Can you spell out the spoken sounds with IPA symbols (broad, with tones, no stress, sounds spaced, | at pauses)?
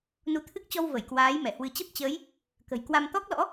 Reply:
n u˨˦ t̪ʰ ɨ˦˥ k̚ t͡ɕ ɔ˧ w v ə˧˩ j k w aː˨˦ j m ɛ˧˩ h w ɨ˨˦ t͡ɕ ə˦˥ p̚ t͡ɕ əː˨˦ j | k ə̤˨˩ j k w a˧ m t̪ ɔ˦˥ k̚ l ɔ̰˧˥